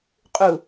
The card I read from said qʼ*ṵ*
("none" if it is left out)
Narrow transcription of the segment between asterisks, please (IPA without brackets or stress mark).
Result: u